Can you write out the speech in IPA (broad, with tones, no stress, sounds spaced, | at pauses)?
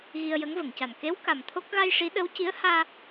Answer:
ɣ i˧ ə̯ j ə˧˥ ŋ v ə˨˩˨ ŋ c a˨˩ n k e˧˥ w k a˨˩ m t̪ʰ o˦˥ k̚ ɣ a˧ j ʂ i˧˥ ɗ ə˧˥ w c i˧˥ ə̯ h aː˧